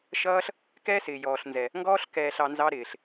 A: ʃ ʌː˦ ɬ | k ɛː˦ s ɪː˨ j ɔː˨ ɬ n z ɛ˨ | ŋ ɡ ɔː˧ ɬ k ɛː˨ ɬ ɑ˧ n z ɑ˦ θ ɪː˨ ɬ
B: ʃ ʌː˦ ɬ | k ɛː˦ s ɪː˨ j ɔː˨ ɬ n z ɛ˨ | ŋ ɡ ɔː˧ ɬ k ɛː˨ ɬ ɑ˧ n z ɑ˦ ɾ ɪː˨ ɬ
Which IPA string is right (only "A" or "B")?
B